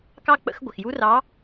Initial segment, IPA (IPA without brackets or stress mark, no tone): k